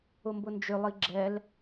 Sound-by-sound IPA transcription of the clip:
ʊmbʊnd͡ʒʏlˠi ɡ͡ǁɛl

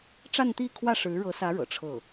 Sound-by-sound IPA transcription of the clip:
ʈ͡ʂa˥˧nt̪i˥˧kʰwä˥˩ ʂɻ̩˧˥ɻɤ˧˥sä˧˥ ɻɤ̰˨˩ʈ͡ʂʰɤ˥˩

